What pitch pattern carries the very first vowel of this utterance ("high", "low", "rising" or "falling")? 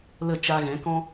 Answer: falling